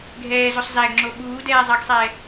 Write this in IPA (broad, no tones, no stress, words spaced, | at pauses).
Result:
ɡʱɛːzosˤ zæɡŋ͡ǁo ɓuːdɛːzˤɑɡsˤɛː